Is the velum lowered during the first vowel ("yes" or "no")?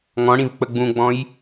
yes